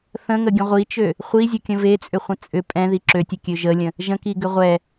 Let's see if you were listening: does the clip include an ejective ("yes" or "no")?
yes